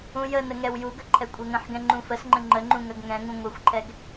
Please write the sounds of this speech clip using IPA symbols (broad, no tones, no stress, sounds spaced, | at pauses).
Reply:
ũ j ə n ə ŋ ɛ w j u ɡ ə ǃʰ ɛ kʷʼ ɛ ŋ ə̃ ħ ɡ ɛ̃ ŋ͡ǃ ũ f ə s ŋ͡ǃ ə̃ ŋ͡ǃ ə ŋ͡ǃ ũ ŋ ɐ ɡ ŋ ɛ̃ ŋ ũ ŋʷ ɐ xʷ ǃʰ ɛ ɡ